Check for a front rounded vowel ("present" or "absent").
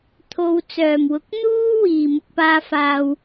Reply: present